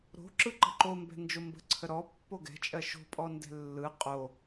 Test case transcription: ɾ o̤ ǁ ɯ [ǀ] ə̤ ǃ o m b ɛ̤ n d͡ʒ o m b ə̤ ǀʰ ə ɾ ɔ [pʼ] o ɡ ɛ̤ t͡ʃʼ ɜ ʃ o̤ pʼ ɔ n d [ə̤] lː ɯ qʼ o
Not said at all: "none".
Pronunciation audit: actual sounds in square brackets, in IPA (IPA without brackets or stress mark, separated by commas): ǃ, pː, ɛ̤